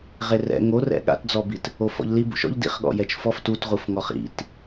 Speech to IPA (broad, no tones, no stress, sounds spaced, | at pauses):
ʁ e r ɛ̰ ŋ o r ɛ̰ ɠ a̰ t d͡z ɔ b i t | o f ɔ̰ ʎ l i b ṵ ʃ ɔ̰ ʎ d ḭ χ ɠ ɔ̰ j ɛ t͡ʃ f ɔ f t u t ʁ u f ŋ ɔ χ ḭ t